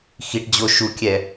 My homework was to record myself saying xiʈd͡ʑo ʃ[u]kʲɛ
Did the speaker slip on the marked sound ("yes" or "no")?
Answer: no